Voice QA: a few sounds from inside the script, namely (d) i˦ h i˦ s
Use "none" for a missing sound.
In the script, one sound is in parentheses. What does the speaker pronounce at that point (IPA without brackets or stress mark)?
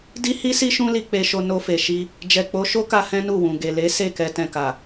d